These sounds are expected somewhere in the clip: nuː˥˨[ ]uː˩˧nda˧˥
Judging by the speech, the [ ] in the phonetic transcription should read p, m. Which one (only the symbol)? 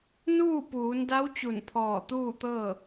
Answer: p